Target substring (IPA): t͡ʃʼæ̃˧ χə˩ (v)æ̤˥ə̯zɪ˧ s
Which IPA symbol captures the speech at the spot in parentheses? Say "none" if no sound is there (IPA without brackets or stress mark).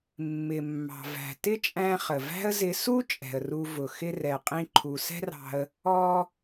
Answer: v